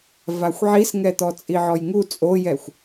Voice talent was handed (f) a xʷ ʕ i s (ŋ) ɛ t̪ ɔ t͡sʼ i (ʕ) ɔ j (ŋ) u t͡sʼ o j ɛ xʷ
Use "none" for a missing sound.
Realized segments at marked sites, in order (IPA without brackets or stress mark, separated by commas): v, ŋ, ʕ, ŋ